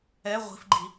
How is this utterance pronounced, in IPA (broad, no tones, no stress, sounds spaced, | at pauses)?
ɛ ʁʷ i̤ f ɡ͡ǃ i